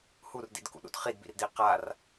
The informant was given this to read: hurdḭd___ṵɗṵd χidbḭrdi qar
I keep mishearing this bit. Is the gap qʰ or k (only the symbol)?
k